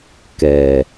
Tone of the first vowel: low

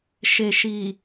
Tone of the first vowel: low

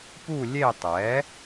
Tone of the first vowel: falling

